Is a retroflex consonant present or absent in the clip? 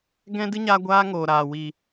absent